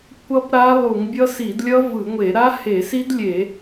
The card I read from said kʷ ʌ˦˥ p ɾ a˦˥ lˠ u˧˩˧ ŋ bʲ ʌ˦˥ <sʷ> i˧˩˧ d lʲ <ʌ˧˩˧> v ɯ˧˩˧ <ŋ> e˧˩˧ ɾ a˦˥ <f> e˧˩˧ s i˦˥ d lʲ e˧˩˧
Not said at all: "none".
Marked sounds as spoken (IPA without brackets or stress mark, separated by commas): s, ʌ˦˥, ŋʷ, h